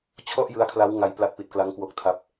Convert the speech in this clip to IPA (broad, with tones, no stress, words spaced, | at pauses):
t͡ɕʰɔ˥˩ʔjɯ˦˥a̯kʰla˦˥w ŋa˧jpla˦˥t̚pi˨˩t̚ kla˦˥ŋkwo˦˥k̚tʰa˦˥p̚